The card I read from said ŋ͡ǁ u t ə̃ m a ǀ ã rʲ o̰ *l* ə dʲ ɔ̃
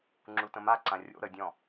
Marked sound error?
yes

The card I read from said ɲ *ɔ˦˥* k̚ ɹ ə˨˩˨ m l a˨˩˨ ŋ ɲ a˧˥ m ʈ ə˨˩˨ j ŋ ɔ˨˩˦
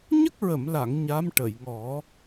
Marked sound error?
yes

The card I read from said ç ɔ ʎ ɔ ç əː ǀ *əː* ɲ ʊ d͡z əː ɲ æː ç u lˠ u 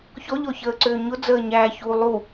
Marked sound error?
yes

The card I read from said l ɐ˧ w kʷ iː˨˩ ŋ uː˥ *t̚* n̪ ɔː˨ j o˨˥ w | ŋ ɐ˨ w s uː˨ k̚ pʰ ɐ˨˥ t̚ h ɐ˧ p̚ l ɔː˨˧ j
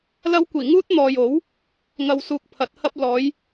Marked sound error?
no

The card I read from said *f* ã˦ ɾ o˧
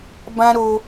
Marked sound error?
yes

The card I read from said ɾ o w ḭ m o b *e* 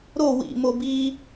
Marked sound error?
yes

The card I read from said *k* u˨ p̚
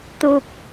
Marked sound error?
yes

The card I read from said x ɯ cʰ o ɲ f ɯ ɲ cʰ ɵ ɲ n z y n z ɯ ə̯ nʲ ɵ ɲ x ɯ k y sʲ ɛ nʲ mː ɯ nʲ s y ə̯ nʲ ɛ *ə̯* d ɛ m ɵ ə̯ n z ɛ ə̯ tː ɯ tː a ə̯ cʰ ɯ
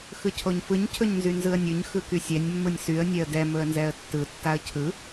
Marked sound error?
no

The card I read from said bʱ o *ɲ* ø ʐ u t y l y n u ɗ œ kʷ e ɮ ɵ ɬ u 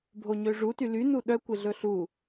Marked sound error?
no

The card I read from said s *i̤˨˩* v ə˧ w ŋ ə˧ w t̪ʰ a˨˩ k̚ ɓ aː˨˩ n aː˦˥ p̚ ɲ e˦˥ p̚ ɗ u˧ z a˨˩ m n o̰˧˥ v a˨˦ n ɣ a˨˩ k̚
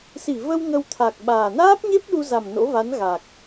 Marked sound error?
yes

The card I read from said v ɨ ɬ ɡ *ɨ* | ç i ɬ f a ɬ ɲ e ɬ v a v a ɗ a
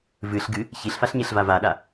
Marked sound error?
no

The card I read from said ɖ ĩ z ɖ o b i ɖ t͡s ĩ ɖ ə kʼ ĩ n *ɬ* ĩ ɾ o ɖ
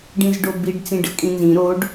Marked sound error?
yes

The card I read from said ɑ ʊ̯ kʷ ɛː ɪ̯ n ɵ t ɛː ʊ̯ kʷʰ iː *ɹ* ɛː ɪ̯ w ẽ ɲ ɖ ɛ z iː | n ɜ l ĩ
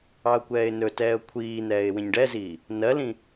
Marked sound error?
yes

